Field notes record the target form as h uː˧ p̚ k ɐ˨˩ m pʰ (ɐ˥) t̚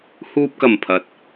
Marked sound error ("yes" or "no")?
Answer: yes